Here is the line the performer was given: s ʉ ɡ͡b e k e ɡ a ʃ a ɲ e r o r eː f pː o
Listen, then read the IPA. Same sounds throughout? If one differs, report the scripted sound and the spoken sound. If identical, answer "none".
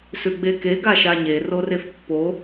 eː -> e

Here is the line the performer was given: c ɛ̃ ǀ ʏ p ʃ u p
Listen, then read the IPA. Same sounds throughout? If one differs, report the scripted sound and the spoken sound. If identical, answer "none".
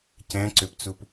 ʃ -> t͡s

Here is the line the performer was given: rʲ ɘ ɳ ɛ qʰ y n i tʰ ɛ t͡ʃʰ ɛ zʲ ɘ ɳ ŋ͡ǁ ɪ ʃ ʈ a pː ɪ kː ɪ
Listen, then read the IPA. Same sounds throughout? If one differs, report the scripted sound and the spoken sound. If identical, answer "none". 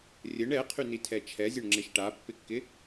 none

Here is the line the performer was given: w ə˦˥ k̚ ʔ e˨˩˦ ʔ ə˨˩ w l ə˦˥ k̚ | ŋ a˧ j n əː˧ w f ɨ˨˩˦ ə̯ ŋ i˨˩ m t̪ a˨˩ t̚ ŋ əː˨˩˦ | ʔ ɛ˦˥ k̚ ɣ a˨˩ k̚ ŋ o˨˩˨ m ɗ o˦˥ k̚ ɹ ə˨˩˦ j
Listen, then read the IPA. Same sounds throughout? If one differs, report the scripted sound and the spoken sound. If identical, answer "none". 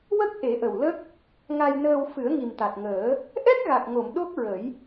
none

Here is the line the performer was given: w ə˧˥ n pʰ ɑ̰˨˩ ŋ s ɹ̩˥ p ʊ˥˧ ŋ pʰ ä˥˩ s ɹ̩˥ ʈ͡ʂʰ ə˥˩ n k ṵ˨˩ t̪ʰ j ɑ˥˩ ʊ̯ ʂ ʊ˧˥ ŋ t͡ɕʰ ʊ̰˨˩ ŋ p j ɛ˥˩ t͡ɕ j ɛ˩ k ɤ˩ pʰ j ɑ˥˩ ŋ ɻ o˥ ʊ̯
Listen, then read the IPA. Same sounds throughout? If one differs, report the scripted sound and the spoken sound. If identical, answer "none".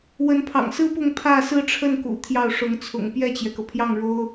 t͡ɕʰ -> t͡sʰ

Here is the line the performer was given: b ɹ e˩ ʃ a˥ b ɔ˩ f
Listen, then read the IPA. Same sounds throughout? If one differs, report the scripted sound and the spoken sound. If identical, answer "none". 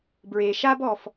none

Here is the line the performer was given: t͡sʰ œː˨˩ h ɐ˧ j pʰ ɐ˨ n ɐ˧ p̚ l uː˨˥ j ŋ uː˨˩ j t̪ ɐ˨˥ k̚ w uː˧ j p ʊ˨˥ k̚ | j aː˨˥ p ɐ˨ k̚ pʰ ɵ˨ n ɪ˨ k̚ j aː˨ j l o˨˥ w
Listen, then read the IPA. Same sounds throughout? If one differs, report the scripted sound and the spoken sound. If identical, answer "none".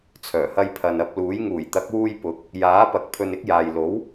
ɪ˨ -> ɪ˧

